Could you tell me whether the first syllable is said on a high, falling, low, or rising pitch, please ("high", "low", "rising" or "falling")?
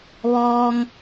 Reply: low